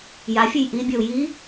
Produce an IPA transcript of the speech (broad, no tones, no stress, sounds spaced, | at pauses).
j a fʲ e j ʔ i bʲ ɒ u̯ j i